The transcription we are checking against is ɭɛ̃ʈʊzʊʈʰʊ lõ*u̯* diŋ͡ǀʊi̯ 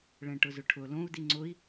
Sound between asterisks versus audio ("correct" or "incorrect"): correct